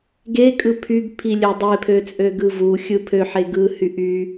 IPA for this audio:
ɡ e kʼ ɯ pʰ y ɡ pʰ i lʲ ø dˤ e pʰ ø t͡sʼ ø ɡ ɯ v u xʲ ɯ pʰ ø ħ e ɡ ɯ h y ʔ y

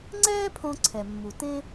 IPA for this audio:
ŋ͡ǀ ɛː˦ pʰ õ˧ ǀʰ ɛ˨ mː u˨ t ẽ˦

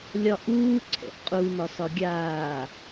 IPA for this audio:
lʲ ɒ ʔ uː ǀʰ ɛ̰ ʔ qʼ u n ɒ s ɒ ɡʲ aː

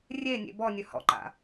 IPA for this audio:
rʲ e nʲ ḛ b ɔ nʲ ɵ h ɔ̰ ǃ a̰

